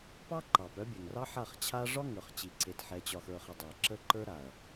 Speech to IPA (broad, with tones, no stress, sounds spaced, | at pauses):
p ɑ˦ ǃ ɑ˨ p œ˦ bʲ œ˨ ŋ r ɑ˦ ħ a˦˨ χ t͡ɕʰ a˦ ʐ ɒ˦ ŋ ə˞˨ χ t͡ɕ i˨ ǀ e˨ t ħ ɛ˨ t͡ɕ ɒ˨ x ə˞˨ χ ɛ˨ dˤ ɛ˨ ǁ ə˦ ǃ ə˞˦ ɾ a˨ ɐ̯